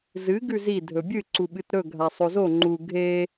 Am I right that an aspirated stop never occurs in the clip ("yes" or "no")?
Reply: yes